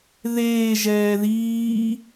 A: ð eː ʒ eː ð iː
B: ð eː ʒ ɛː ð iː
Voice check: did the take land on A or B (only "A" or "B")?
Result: B